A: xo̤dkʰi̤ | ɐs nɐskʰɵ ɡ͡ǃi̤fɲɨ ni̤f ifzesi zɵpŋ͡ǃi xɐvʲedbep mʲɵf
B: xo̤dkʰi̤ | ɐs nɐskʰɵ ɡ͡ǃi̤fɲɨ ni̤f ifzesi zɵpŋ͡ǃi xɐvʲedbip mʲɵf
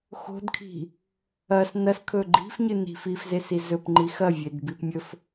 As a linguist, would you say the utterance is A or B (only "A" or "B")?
B